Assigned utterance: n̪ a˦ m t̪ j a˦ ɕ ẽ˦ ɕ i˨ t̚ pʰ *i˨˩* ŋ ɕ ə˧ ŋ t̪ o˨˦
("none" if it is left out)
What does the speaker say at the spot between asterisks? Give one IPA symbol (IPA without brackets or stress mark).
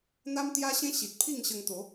i˥˧